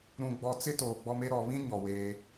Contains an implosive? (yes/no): no